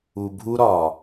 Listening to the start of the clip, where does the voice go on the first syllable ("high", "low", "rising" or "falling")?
low